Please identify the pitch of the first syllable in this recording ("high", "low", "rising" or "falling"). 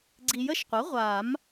low